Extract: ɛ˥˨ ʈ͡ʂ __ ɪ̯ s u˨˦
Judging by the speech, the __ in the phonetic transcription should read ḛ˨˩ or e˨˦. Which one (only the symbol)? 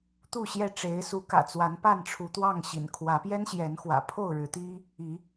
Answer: e˨˦